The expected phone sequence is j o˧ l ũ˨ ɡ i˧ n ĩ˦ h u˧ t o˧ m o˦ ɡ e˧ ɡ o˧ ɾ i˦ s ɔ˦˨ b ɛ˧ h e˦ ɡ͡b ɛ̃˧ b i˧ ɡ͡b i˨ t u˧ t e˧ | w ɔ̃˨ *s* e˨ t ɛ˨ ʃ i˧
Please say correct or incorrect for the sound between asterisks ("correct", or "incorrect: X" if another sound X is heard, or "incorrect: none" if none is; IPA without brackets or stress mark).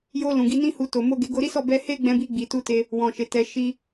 incorrect: ʃ